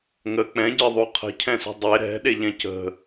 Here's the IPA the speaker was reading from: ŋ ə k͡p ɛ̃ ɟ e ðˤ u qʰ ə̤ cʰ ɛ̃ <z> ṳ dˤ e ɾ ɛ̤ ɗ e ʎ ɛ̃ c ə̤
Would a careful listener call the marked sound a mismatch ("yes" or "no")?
yes